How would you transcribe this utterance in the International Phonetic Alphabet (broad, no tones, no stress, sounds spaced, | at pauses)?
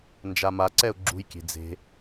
n d͡ʒ a m a ǀ ɛ ʊ̯ ɡ͡ǁ ṳ j kʲ e̤ d͡z e̤